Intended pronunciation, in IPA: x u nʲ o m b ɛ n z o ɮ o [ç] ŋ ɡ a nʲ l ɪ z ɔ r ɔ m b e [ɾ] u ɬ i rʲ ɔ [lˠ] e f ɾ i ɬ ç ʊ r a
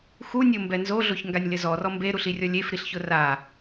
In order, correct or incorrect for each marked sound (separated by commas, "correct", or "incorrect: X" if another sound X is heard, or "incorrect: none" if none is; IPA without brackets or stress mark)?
correct, correct, incorrect: lʲ